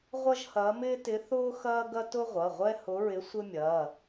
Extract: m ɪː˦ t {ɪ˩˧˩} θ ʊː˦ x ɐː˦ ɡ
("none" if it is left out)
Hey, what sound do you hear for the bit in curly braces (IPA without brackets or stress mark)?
ɪ˨˦